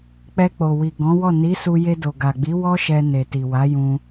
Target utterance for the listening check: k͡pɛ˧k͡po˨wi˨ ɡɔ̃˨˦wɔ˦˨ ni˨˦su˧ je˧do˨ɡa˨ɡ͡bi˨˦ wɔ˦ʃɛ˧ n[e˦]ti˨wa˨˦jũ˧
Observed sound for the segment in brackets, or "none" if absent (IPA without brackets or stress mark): e˨